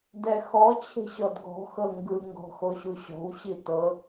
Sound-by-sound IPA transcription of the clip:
dɛxɔ t͡ɕʰe̤ɕɔdɡɔ̤ xɤŋɡɯ ŋɡɔ̤xoɕuɕɔ̤w ɕitɤ

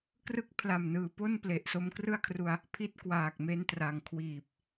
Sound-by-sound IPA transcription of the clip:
krɯ˦˥k̚pʰla˨˩mnɯː˩˦po˥˩n ple˨˩ʔso˧mkrɯ˥˩a̯kʰru˧a̯ | pʰi˦˥t̚kwaː˨˩k̚me˧n tra˨˩ŋkʰwiː˨˩p̚

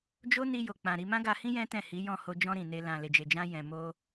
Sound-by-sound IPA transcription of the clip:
d͡ʒo˦ ni˧jo˨ k͡pã˨ɾi˧ mã˦ɡa˧hĩ˦ jɛ̃˦tɛ̃˦˨hi˨˦ jɔ̃˦˨ho˧ d͡ʒɔ̃˧ ɾĩ˨ne˧ lã˨le˨d͡ʒe˨ d͡ʒã˧jɛ̃˨mo˧

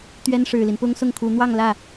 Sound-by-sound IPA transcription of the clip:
t̪ɥɛ˥nʂɻ̩˨˩li˦n pʊ˥ŋsʊ˥˩ŋkʰu˧˥ n̪wɑ˥˧ŋlä˥˩

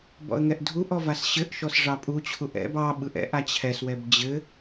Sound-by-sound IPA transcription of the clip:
bɔ̰ə̯ŋɛʔdʱuʔɔ vasɕɘʔʃɔs ʐɑpʼut͡ɕʰuʔ ɛ̰b ɑɓɯʔ ɛ̰ʔa t͡ɕʰɛswɛb d͡ʑɘ

